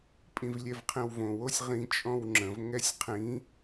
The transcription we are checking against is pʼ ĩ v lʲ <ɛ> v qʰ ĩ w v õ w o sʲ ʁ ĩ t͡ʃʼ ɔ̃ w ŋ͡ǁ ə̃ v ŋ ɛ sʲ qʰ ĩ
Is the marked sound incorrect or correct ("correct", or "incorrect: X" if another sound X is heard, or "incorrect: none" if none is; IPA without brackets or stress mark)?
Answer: correct